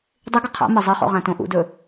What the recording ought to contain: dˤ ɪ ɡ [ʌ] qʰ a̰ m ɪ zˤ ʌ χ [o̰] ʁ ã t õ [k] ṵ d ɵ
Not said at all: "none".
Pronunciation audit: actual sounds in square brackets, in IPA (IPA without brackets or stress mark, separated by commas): ʌ, o̰, ʔ